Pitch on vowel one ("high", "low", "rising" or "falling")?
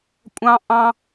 high